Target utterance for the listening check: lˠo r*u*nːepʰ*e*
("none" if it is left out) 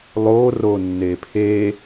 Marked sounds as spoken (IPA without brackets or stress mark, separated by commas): o, e